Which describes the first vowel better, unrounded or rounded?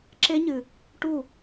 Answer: unrounded